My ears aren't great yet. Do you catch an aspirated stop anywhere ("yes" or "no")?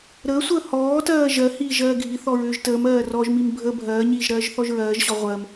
no